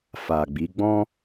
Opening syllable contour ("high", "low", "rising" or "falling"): low